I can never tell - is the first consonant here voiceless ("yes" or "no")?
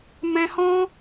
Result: no